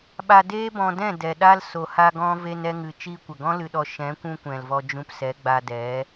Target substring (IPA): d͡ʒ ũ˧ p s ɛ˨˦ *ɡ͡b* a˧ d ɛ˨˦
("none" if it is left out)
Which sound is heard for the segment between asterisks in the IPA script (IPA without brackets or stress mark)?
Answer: ɡ͡b